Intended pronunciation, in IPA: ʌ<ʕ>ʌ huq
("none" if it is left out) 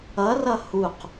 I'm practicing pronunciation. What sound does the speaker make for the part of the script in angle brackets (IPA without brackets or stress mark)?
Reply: r